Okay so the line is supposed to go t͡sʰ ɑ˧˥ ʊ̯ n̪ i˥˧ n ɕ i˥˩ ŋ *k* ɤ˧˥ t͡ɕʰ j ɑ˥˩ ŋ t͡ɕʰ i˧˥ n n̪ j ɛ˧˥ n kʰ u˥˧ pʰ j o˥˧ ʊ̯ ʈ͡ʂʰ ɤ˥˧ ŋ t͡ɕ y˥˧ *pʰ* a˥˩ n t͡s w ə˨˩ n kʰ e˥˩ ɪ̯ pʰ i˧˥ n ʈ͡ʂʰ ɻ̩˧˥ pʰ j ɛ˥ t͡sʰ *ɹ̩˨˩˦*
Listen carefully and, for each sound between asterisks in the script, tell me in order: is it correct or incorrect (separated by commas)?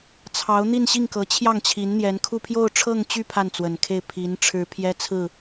correct, correct, incorrect